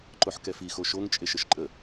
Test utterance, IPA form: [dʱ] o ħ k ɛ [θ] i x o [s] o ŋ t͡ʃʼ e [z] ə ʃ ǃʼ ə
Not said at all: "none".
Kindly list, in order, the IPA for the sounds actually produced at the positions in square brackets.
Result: ǃ, f, ʃ, ʃ

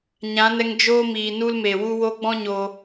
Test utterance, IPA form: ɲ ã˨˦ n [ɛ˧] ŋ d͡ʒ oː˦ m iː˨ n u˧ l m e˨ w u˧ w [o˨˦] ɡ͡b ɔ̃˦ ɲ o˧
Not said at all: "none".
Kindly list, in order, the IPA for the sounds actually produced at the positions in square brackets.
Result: ɛ˧, o˧

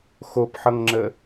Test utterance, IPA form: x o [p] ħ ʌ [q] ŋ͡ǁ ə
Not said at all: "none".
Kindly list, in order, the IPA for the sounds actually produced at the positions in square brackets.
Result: p, ŋ

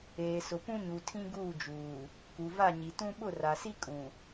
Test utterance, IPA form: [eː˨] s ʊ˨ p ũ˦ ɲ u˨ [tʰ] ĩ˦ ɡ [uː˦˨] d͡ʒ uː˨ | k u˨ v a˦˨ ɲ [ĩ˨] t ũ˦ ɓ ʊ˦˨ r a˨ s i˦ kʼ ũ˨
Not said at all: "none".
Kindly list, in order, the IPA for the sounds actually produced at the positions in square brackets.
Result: eː˨, tʰ, uː˦˨, i˨

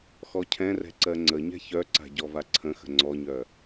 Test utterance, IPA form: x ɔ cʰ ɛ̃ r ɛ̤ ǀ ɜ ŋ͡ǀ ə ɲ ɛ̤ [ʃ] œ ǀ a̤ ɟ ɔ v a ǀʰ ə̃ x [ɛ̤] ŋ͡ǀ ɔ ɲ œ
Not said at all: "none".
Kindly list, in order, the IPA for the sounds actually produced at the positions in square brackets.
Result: ç, ə̤

